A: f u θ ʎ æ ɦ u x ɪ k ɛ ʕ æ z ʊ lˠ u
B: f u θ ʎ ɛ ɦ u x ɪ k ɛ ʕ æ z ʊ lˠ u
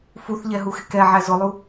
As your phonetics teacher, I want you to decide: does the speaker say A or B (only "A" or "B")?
B